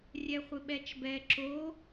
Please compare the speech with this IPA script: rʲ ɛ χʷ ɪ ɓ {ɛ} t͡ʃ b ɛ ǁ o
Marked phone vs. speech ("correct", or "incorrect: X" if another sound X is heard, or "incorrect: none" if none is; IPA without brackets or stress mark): correct